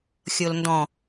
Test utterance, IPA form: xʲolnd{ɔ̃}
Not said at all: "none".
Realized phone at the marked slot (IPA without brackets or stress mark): ɔ̃